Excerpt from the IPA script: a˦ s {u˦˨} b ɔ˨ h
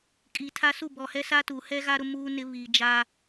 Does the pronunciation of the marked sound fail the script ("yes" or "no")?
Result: no